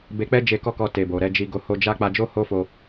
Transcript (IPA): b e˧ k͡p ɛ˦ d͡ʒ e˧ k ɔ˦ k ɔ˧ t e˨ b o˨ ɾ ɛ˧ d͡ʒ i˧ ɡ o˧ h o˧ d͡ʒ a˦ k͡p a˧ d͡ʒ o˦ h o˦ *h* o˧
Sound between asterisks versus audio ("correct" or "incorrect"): incorrect